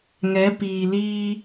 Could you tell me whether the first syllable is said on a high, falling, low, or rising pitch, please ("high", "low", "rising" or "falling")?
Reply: rising